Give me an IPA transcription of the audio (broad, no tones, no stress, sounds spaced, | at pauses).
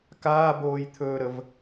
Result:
k aː b oː j t̪ʰ ɵː ɾ ə v